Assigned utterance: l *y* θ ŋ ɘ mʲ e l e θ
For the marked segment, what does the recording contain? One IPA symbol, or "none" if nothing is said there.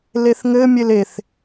e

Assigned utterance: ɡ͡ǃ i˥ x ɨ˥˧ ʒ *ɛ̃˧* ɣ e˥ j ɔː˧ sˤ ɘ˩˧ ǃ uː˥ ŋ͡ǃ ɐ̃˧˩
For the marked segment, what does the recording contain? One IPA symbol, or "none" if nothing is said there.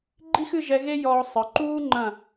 ɛ˧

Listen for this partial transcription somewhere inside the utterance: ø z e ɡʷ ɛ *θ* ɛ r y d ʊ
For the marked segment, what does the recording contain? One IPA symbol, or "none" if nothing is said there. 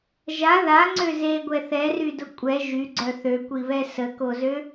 θ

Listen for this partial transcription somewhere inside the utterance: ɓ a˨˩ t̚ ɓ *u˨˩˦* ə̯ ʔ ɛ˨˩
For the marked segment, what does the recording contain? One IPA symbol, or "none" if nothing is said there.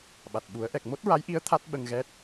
u˨˩˦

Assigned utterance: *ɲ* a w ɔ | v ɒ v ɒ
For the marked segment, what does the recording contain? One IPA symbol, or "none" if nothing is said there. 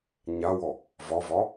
ɲ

